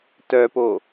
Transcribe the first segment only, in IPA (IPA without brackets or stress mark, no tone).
t